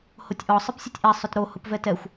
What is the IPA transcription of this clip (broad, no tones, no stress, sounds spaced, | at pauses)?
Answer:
h o tʲ ʔ ɔ sˤ ɘ p sʲ ɘ tʲ ʔ ɛ sˤ ʊ t ɾ o h ʊ p v ɛ t ɛ xʷ